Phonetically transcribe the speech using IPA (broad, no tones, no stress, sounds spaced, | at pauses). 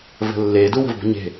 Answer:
v ə̤ lː e d u w ə̤ v b ə̤ ɲ e̤